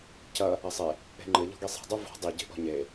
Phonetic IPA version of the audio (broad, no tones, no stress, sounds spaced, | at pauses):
c ɐ | ɐ sˤ e | e̤ ŋ͡ǃ ɘ ʎ ɔ̤ ɡ i sˤ a̤ dˤ u v ɔ̤ dˤ i ɟ e̤ ʔ ɔ̤ ɲ e